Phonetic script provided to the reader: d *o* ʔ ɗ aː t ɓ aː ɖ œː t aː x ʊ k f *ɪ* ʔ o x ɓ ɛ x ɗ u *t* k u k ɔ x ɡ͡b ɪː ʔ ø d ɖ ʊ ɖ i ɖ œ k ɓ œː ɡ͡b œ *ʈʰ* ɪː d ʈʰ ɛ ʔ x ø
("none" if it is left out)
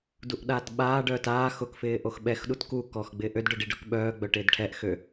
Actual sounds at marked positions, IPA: u, ɪː, t, ʈ

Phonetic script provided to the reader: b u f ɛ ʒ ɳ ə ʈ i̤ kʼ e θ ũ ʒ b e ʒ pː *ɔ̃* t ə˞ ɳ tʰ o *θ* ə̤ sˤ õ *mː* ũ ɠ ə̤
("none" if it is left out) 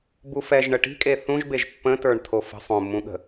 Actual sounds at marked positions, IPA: ə̃, f, mː

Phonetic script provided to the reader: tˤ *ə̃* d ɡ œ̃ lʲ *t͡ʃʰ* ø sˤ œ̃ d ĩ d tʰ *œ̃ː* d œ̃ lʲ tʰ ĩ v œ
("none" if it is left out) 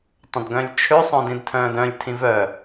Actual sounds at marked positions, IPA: ə̃, t͡ʃʰ, œ̃ː

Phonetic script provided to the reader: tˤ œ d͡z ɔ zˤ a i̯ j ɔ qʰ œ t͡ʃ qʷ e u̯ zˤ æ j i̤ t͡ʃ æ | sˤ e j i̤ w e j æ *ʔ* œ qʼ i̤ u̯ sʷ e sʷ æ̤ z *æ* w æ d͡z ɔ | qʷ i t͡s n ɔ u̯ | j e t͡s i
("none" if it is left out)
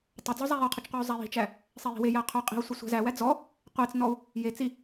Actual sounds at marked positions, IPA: qʰ, æ

